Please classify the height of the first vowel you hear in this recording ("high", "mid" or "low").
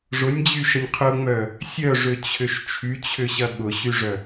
high